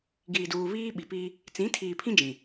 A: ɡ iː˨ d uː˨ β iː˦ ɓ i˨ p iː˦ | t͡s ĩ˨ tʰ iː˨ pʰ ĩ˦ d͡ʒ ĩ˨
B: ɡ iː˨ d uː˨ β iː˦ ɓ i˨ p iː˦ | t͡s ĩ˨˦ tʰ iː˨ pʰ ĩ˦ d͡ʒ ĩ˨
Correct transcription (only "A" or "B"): B